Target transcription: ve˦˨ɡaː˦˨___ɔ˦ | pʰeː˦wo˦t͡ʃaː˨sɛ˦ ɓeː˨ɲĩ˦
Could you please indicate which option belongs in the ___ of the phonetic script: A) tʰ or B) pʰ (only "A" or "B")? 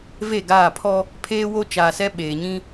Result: B